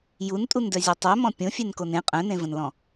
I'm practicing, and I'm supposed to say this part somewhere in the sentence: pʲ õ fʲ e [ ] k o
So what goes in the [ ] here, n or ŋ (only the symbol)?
n